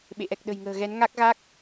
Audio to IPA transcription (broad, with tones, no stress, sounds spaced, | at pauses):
ɓ ḛ˧˨ ʔ ɛ˨˩ k̚ ɗ ə̤˨˩ j ŋ ə̤ː˨˩ ɣ ɛ˨˦ n ŋ a˦˥ k̚ ɣ a˦˥ k̚